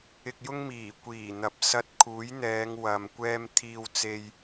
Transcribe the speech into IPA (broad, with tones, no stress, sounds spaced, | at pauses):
ɪ˧ k̚ j ʊ˥ ŋ m iː˨˩ kʷ iː˨˩ n̪ ɐ˨˥ p̚ s ɐ˧ t̚ kʰ uː˨˥ j n̪ ɛː˨˧ ŋ w ɐ˧ m kʷ ɛː˥ m t̪ʰ iː˧ w t͡s e˧ j